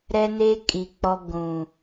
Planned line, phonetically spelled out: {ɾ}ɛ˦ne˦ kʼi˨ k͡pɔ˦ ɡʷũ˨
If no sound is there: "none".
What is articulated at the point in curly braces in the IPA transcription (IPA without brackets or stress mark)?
ɾ